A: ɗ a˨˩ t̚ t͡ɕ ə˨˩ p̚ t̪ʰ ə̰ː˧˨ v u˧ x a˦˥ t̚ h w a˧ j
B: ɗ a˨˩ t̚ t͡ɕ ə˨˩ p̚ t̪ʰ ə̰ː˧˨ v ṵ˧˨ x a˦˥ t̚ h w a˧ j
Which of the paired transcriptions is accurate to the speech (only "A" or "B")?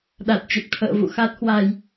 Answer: B